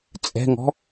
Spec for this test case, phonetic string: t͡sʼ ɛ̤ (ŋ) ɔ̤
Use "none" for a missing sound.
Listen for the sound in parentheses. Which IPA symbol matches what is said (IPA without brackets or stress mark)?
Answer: ŋ